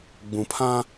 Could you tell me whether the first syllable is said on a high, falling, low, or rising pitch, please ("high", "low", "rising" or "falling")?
low